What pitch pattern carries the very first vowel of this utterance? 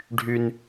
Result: high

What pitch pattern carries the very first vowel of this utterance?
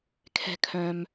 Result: high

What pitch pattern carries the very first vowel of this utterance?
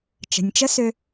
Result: low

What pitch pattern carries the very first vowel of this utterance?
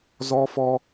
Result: high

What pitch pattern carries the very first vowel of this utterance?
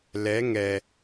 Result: rising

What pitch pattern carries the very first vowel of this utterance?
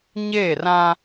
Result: falling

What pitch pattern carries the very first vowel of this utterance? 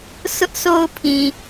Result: high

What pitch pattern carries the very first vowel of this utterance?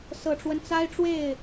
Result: low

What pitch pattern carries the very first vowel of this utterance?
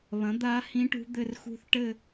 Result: rising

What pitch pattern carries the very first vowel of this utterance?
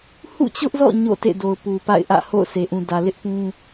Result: falling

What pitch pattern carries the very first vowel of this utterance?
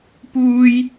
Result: high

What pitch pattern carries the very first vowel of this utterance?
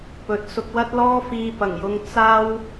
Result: rising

